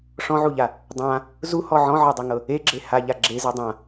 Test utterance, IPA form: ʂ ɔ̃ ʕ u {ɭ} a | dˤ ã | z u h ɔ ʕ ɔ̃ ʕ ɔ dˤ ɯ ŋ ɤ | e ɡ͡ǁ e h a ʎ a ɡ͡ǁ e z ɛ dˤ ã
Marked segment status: incorrect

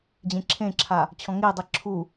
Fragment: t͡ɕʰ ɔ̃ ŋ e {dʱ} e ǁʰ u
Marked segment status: incorrect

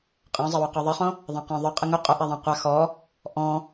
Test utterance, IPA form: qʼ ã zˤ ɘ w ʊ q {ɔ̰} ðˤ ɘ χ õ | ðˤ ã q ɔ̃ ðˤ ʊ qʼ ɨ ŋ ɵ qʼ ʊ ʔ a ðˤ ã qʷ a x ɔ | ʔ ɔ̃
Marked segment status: incorrect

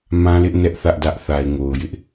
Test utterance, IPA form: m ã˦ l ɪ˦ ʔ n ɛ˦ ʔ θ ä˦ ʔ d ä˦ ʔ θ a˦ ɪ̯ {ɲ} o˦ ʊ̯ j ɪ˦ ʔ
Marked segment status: incorrect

